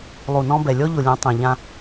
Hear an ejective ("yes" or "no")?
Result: no